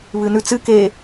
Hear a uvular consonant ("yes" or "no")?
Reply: no